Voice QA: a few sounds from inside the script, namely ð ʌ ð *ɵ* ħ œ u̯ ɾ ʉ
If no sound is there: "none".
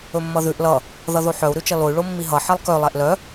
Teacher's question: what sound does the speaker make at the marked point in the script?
o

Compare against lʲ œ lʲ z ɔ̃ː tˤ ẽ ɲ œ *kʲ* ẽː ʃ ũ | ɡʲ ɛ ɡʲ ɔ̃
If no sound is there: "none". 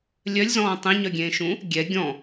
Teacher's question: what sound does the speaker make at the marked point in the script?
ɡʲ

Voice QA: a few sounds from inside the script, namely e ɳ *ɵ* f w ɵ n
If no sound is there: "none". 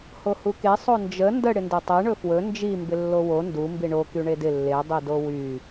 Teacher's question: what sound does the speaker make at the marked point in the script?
ɵ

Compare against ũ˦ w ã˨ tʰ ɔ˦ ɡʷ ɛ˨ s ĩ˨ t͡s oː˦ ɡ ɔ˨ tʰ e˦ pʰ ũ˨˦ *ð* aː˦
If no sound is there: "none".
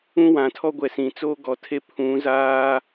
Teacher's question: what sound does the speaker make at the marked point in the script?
z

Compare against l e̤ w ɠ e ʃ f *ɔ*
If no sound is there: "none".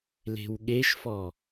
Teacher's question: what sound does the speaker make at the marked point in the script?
ɔ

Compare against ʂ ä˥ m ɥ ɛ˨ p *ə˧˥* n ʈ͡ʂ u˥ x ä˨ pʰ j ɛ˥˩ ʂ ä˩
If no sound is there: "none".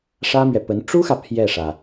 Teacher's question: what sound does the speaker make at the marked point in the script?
ə˧˥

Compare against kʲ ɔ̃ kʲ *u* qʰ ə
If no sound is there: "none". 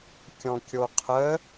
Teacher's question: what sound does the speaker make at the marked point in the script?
o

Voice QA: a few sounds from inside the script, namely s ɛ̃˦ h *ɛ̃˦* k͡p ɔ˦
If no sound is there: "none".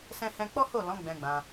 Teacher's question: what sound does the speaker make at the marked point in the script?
ɛ̃˦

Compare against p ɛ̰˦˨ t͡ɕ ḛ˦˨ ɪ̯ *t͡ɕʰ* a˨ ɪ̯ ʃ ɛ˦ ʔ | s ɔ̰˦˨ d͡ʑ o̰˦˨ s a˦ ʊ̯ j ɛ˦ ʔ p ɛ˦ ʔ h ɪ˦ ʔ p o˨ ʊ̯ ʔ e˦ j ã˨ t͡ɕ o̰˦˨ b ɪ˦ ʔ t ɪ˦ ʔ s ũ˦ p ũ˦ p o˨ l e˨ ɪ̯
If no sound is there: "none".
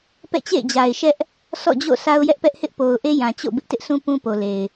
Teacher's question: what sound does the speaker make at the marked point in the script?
d͡ʑ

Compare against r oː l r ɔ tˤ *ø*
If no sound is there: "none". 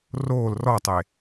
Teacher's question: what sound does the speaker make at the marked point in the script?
e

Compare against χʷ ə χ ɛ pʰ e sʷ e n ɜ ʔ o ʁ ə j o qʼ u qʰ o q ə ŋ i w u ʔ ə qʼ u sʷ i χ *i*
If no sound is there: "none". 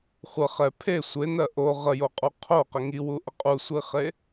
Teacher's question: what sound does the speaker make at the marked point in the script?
e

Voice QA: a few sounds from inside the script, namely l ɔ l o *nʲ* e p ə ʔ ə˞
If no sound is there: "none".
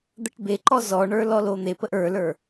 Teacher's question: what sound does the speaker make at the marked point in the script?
n̪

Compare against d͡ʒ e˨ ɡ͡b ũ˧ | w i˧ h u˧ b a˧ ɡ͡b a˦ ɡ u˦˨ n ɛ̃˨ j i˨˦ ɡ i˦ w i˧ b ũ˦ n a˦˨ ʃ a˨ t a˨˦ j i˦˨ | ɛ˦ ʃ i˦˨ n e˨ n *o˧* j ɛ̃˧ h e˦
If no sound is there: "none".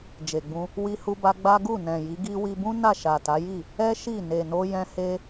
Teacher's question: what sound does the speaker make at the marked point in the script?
o˧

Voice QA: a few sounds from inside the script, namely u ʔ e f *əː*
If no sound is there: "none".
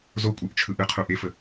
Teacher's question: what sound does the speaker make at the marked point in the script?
ə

